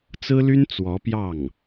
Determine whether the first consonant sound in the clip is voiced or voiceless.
voiceless